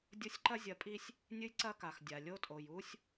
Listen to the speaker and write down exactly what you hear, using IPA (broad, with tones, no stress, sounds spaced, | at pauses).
dʲ o˦ sʲ ǃ ɐ˦ zʲ ɐ˨˦ pʼ i˦ sʲ | nʲ ɨ˦ j ǀ ɐ˦ k a˨ x dʲ a˨ lʲ o˦ tʼ o˨ j u˦ sʲ